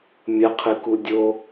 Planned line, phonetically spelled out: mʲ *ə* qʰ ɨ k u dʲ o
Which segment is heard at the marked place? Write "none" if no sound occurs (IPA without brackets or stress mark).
ə